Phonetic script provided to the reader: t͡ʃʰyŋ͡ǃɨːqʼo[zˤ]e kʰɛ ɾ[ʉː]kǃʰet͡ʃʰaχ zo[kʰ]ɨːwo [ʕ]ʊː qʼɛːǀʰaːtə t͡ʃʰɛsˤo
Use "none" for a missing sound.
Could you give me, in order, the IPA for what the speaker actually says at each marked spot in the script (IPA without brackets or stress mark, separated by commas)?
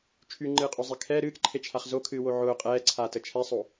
zˤ, ɨː, kʰ, ʕ